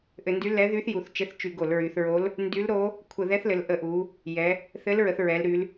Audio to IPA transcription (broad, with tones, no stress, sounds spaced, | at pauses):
ʔ ɘ˧˩˧ n d y˧˥ l ɛ˧˥ ð y˧˥ θ j u˩˧ θ t͡ʃ ɘ˧˥ θ t͡ʃ y˧˩˧ ɡ o˧˩˧ l ɹ y˩˧ θ ɹ o˧˥ l | n d y˧˥ l ɾ o˧˥ | kʷʰ ə˧˩˧ ð ɛ˧˥ θ l ɘ˩˧ l ʔ ə˧˩˧ ʔ u˩˧ | j ɛ˩˧ | θ ɘ˧˥ l ɹ ə˩˧ θ ɹ ɛ˩˧ l ɾ y˩˧ l